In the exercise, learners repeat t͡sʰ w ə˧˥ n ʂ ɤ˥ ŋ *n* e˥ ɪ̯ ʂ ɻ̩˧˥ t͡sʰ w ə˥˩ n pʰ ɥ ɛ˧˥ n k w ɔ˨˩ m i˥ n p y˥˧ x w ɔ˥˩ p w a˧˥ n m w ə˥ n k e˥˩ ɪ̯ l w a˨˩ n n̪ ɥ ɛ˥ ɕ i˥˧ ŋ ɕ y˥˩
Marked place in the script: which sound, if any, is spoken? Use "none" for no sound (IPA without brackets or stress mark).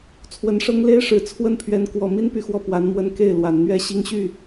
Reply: l